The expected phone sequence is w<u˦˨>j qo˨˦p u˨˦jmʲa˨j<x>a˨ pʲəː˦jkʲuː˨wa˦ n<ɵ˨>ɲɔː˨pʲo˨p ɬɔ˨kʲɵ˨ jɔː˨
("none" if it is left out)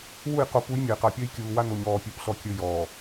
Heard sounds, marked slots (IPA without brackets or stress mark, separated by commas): u˦˨, q, o˨